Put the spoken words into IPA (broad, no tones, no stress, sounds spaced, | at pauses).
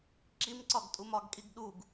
ǁ i m ǀ ɒ ɡ tʼ u m ɒ ɡ kʼ i ɡ ɗ u ɡ